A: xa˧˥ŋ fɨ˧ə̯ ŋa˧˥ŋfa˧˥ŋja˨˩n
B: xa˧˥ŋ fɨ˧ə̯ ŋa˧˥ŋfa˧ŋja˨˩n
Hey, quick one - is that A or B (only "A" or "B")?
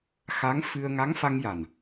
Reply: B